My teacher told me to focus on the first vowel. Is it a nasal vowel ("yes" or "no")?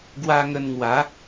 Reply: no